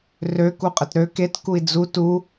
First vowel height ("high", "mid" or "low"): mid